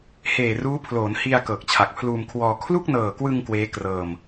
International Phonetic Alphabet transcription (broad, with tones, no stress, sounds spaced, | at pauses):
h eː˨˩ r uː˦˥ pʰ l oː˩˦ n h i˧ a̯ k ɤː˨˩ k̚ t͡ɕʰ a˨˩ k̚ pʰ l uː˧ m kʰ w ɔː˧ kʰ l u˥˩ k̚ n ɤː˨˩ k w ɯ˧ ŋ k w eː˦˥ k r ɤː˧ m